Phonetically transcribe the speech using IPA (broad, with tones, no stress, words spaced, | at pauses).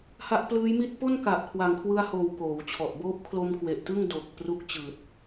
ha˦˥ʔplɯː˦˥jmi˥˩t̚ po˥˩nka˨˩ʔ kʰwa˨˩ŋkʰwɯ˧a̯hoː˨˩w koː˩˦wt͡ɕʰɔ˨˩ʔ boː˦˥p̚kʰlo˧m kwe˨˩ʔtɯ˥˩ŋ do˨˩k̚ pru˦˥k̚t͡ɕɯː˨˩t̚